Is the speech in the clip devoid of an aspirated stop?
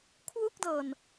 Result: no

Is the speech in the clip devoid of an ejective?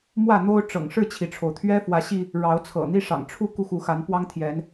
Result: yes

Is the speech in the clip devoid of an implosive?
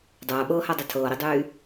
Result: no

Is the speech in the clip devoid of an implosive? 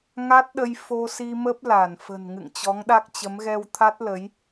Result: no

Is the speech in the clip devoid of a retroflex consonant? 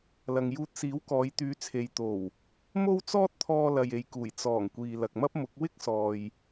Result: yes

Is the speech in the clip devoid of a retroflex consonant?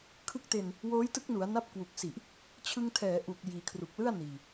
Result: yes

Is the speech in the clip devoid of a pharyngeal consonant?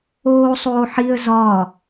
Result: no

